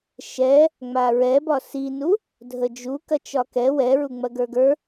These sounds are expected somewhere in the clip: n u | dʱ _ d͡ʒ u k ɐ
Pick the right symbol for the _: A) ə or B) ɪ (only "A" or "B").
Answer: A